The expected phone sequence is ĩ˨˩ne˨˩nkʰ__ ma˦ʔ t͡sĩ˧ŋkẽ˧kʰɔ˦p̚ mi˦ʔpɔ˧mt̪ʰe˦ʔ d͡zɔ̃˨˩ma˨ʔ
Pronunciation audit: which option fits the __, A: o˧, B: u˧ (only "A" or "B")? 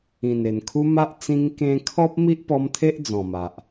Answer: B